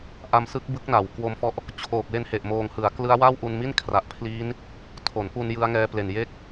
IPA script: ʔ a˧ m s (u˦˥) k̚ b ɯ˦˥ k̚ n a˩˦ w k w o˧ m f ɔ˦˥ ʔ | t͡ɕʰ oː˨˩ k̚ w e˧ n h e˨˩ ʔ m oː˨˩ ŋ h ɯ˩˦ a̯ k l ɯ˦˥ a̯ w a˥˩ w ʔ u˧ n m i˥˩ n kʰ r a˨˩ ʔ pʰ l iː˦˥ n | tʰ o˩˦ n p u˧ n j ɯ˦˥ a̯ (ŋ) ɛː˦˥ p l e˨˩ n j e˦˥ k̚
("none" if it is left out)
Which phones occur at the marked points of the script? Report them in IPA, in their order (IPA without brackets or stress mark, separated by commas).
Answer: ɯ˦˥, ŋ